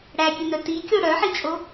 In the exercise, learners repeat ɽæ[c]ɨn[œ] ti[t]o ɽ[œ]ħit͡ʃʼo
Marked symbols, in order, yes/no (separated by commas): no, yes, no, yes